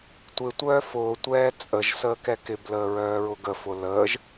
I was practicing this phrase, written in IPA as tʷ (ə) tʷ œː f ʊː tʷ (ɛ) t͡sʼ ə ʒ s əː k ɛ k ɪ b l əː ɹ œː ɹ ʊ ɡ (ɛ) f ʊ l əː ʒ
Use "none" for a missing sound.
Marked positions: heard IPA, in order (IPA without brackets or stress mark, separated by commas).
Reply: ɪ, ɛː, ə